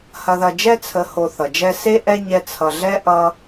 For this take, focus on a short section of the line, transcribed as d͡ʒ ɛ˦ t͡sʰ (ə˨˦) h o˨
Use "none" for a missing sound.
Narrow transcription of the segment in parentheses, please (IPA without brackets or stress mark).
ə˨